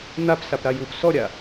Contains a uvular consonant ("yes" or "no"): no